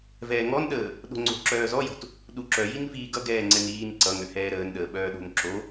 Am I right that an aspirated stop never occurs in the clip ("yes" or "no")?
yes